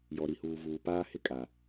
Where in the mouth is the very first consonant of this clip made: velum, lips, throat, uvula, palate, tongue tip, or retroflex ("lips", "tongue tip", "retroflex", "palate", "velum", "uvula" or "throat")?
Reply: palate